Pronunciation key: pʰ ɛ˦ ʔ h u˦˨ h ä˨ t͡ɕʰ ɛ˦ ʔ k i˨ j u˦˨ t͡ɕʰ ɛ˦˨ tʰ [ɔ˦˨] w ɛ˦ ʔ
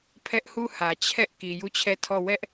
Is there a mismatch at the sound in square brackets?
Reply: no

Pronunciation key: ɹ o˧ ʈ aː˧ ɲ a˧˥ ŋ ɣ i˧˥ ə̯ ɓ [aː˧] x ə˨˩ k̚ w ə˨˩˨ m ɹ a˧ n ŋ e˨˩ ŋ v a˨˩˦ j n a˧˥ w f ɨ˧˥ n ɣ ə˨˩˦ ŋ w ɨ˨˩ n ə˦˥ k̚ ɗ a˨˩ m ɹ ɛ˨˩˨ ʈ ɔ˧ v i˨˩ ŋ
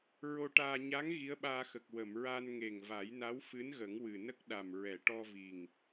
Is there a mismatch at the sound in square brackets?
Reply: no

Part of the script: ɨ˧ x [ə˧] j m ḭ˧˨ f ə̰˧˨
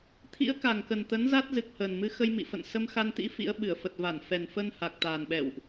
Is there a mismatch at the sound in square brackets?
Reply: no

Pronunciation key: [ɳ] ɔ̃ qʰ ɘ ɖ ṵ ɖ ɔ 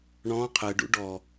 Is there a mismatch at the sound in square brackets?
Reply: no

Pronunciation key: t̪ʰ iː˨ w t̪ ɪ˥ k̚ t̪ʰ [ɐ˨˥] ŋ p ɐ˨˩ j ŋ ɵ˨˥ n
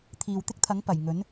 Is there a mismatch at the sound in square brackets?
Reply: no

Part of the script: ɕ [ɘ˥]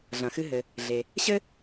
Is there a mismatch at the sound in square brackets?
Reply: no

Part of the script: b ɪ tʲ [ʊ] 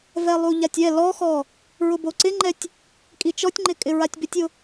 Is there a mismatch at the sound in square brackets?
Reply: no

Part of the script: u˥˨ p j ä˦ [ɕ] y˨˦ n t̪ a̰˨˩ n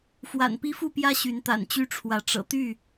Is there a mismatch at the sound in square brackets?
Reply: no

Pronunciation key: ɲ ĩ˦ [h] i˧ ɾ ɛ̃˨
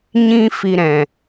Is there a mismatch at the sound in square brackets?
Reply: yes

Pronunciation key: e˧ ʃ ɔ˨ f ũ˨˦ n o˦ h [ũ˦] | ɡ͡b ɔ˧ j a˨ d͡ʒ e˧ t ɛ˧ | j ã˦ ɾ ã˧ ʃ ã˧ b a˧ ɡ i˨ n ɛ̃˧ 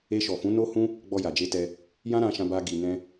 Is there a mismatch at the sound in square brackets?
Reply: no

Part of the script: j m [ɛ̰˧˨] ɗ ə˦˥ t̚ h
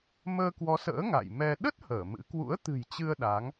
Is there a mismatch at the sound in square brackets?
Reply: yes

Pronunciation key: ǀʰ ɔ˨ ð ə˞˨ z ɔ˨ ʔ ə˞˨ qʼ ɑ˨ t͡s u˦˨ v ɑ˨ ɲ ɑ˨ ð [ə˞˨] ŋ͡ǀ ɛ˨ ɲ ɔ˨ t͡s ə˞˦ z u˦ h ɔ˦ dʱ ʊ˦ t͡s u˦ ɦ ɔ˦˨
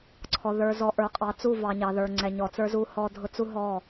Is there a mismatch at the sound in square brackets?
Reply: no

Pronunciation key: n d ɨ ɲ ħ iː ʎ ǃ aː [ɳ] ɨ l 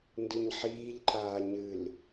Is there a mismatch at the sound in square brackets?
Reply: yes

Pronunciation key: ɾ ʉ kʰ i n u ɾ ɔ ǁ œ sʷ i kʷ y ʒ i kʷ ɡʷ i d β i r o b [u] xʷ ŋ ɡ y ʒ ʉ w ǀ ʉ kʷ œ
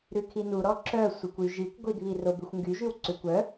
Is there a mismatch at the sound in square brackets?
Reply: yes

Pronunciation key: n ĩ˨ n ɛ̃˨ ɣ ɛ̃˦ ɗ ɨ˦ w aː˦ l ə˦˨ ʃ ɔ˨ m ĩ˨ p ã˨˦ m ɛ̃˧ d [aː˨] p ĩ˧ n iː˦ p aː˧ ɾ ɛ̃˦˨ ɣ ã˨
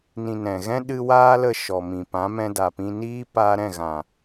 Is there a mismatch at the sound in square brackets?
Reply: yes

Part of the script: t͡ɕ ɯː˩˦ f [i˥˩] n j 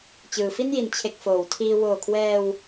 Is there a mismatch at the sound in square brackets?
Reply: no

